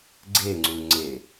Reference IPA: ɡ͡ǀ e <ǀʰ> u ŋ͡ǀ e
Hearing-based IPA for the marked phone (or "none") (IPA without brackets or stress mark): ŋ͡ǀ